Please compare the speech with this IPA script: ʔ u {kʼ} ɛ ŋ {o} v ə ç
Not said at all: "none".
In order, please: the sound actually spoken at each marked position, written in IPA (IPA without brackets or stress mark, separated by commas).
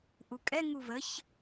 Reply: kʼ, u